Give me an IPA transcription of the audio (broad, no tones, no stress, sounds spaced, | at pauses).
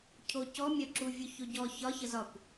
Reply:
cʰ o c ɔ mʲ ɒ ǁ u vʲ u ç o ɟ ɔ ç ɒ ç ə z ɒ kʷ